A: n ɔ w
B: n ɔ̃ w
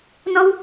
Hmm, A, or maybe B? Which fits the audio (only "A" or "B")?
A